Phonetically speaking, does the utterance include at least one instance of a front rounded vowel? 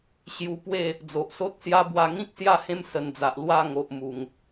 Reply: no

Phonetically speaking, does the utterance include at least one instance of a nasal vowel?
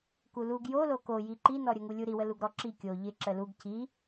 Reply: no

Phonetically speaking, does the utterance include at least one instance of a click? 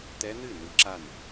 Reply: yes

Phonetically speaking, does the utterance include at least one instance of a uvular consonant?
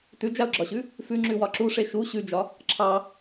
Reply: no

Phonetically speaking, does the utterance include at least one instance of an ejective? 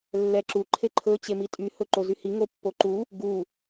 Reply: yes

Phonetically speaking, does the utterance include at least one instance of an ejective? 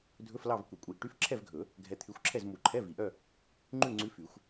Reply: yes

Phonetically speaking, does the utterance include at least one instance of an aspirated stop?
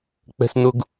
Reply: no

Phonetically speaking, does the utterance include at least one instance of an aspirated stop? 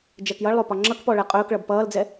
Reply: no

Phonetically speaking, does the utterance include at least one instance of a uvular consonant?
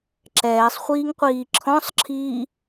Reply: yes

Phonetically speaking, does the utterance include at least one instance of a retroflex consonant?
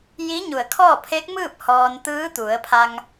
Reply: no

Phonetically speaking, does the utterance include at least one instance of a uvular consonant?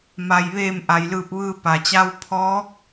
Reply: no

